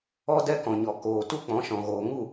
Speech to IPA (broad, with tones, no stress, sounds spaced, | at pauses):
ɔ˧ d ɛ˦ k ɔ̃˨ ɲ ɔ˨ k oː˨ t u˦ k͡p ɔ̃˨˦ ʃ ɔ̃˨ ɣ oː˨ ŋ u˦˨